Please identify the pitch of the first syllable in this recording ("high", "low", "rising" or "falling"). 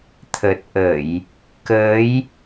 low